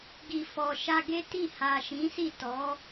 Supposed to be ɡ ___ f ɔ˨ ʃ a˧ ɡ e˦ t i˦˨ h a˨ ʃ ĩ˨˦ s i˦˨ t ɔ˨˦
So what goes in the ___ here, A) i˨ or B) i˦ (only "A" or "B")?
A